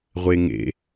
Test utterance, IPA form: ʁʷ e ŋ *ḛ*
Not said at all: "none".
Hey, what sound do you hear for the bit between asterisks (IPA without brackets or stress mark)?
ḛ